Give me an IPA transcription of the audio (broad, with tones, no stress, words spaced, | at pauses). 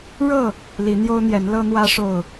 ɻɤ˥˨ | li˨˦n̪jo˦ʊ̯n̪jɛ˨˦n lɤ˦n̪wä˦ʂo˥˨ʊ̯